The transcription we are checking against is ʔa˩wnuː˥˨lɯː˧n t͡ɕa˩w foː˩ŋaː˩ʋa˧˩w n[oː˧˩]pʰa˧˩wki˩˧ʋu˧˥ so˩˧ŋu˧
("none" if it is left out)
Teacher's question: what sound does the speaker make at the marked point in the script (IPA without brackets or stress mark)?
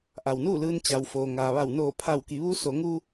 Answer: oː˧˩